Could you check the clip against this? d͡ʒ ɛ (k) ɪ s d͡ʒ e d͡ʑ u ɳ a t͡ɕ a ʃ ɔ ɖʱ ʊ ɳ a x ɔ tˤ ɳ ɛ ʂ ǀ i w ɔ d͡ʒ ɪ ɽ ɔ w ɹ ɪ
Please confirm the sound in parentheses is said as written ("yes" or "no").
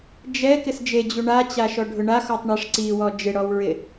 yes